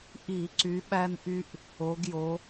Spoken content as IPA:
ʔi˧˩˧ǀy˨˦ɓæ˦nʔy˦ʔ | o˨˦ɡjo˨˦

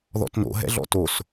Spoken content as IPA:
ðɔ̰tno̰ ɦɛ̰ɮɔ̰tos

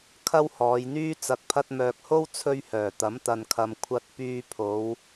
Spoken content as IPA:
kʰɐ˥whɔː˨˧jn̪yː˥ t͡sɐ˨k̚pʰɐ˧t̚mœː˨k̚ho˥w t͡sʰɵ˥ɥhœː˨˩t̪ɐ˨˥m t̪ɐ˨nkʰɐ˨m kʷʰɐ˧t̚pyː˧ pʰo˨˧w

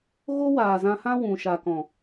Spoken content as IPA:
ɣo˦waː˨zã˧hã˦ wũ˨ ʃa˨kɔ̃˨

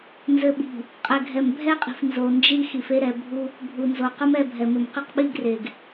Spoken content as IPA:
nzɘ˨ɓi̤˨ | qʼɛ˨ɡʱɛ˨mbʱɛ˦qʼi̤˨f nzo˨nd͡ʒi˦ xi˨fe˦ ɾɛ˨bʱu˦ | bʱu˨nzo˨ qɐ˦mɛ˦˨bʱɛ˨mɘ˨m qɘ˦qɓi˦ɡre˨ɡ

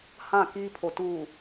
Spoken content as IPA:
hã˦˨kiː˦pʰo˨ tuː˨

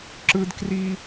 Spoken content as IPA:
ǁɯ˦dkri˦

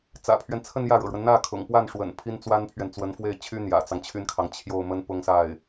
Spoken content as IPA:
t͡sä̰˨˩pʰɥɛ˦n t͡sʰə˥˧njä˥˩ɻɤ̰˨˩ɻwə˦n n̪ä˥˩kʰʊ̰˨˩ŋpwa˥˩nʂwə̰˨˩n pʰi˥nt͡swa˥npʰɥɛ˨n t͡swə˧˥nfwe˥˩ɪ̯t͡ɕʰy˥ n̪jä̰˨˩t͡sɑ˦ŋt͡ɕʰy˥nkʰɑ˨ŋ t͡ɕʰjo˥˩ʊ̯mə˥n pʊ˥ŋsa˥˩ɪ̯

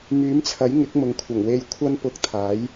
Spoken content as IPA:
myː˨˥mt͡sʰɐ˨˥jŋɪ˨˥k̚ mʊ˨ŋkʷʰɐ˨˩ŋwe˧jkʷʰɐ˥n pʊ˧k̚t̪ʰaː˨˥j

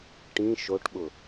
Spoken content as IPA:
ʈĩ ʃoʈɓʊ

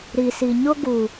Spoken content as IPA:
ɾi˨si˨ ɲʊ˦ ɡu˨

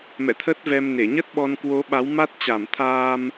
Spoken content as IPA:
mɛ̰˧˨t̪ʰə˦˥t̚vɛ˧mne˧˩ ɲə˦˥t̚ɓɔ˧nkwo˨˦ ɓa˨˦wma˦˥t̚ t͡ɕa˧˩mt̪ʰaː˧m

